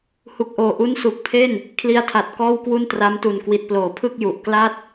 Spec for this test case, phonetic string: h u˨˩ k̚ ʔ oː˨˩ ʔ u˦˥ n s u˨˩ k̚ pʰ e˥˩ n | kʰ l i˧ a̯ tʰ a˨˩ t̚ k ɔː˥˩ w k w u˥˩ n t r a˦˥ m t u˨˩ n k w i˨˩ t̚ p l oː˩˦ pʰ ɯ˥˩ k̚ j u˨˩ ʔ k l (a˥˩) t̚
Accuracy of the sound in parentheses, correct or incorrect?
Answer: correct